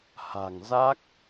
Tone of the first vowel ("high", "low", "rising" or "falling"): low